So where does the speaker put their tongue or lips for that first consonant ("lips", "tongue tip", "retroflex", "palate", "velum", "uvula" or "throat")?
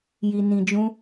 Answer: palate